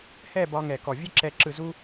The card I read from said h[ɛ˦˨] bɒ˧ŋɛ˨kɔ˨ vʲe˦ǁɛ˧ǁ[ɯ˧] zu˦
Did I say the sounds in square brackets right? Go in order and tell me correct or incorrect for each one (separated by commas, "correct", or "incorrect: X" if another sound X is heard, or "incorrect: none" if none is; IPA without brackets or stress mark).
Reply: correct, correct